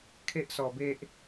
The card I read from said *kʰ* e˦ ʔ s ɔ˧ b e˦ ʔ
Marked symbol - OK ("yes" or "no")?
yes